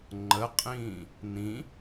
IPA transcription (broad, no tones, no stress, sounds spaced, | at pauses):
ŋ͡ǃ ə qʼ ĩː | n ĩ